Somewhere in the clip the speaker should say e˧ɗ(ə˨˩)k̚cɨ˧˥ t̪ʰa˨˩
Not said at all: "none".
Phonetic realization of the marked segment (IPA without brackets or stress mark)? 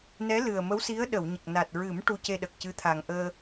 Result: ə˨˩